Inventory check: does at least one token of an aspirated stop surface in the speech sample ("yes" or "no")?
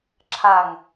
yes